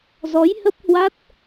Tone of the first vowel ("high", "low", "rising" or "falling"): rising